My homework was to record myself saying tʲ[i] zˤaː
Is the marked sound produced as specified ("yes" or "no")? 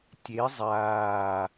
no